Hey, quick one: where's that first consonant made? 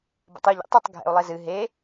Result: lips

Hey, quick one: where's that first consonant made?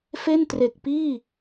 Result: lips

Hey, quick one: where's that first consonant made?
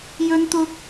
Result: palate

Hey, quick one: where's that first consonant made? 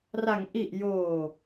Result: tongue tip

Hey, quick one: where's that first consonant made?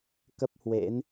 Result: velum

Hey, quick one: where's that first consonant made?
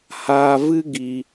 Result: throat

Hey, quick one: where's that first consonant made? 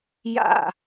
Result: palate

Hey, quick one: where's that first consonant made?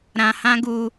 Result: tongue tip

